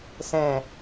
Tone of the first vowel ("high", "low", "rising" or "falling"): low